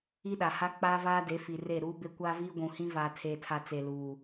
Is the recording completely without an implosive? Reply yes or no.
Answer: no